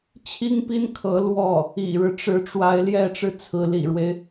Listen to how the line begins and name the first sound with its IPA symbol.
t͡ɕʰ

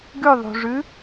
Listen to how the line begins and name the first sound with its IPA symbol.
ɡ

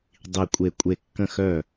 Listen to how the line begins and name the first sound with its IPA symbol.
dˤ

